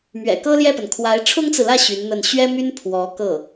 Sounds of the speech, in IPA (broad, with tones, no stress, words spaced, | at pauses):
mɥɛ̰˨˩kɤ˥ljɛ˥˩pə˩n kʰwa˧˥ɪ̯ ʈ͡ʂʰʊ˥ŋt͡sɹ̩˨lä˥˩ ɕy˧˥nn̪ə˥˩n ɕɥɛ˥my˥n pʰwɔ˧˥kɤ˥˩